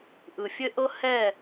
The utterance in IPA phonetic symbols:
ʔɯ˨fʲɘ˦ʔɤ˦ hɛ˦˨

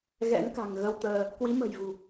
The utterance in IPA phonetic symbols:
ɣɛ̰˧˥nka̤˨˩ŋ ɣə˧wt̪əː˧ | kwi˨˦mə̤˨˩jvṳ˨˩

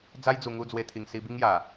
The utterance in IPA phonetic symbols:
d͡za˦jd͡zu˨˩ŋu˧ d͡zwe˧t̪ʰi˨˩ŋ si˧bi˦ŋja˨˩

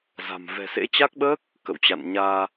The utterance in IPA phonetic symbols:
za̤˨˩m vɛ̤˨˩sḛ˧˥t͡ɕa˦˥k̚ɓəː˦˥k̚ | kə̰˧˨wt͡ɕa̰˧˨nɲaː˧

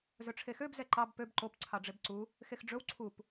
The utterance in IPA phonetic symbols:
zɵʈ͡ʂʰexøb zɛǃɑb pøb ǃop ǀʰɑɖ͡ʐebǀu | xexɖ͡ʐɵw ǀʰup

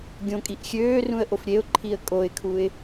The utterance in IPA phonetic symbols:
ɡʲõkʼiʔ xʲøːrũə̯ʔof ɾʲeʊ̯ǃʰiə̯ kʼoɪ̯kʰuɪ̯

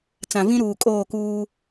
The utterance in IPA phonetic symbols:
t͡sã˨vĩ˦ɾuː˨ kʼoː˦˨kuː˦

